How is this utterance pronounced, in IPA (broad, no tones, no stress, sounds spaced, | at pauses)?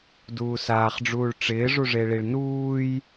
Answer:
d uː s aː χ ɖ͡ʐ uː ɭ ʈ͡ʂ ɪː ʐ u ʐ e ɭ i ɭ n uː j